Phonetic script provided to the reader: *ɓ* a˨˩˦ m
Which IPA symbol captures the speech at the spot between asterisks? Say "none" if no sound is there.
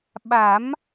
ɓ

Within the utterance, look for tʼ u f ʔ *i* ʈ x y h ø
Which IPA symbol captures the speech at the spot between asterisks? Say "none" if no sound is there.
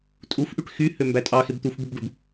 y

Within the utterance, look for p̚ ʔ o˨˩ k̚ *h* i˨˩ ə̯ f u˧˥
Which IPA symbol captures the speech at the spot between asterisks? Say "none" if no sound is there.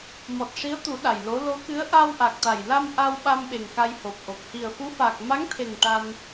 h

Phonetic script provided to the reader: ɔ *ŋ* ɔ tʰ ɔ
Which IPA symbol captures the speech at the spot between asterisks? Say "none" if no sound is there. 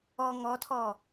ŋ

